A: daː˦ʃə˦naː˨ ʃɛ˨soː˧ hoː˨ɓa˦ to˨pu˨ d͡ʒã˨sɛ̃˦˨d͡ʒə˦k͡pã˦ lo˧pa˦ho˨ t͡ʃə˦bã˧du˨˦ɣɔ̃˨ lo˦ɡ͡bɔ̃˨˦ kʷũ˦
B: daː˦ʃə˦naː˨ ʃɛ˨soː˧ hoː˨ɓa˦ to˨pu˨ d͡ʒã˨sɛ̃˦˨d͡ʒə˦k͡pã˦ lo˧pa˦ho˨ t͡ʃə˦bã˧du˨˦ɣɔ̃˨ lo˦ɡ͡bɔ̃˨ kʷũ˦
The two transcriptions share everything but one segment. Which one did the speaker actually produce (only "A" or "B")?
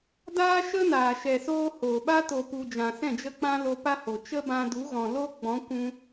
A